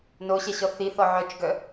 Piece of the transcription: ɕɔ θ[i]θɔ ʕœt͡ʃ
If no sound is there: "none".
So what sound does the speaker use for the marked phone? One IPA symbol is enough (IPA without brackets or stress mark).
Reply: i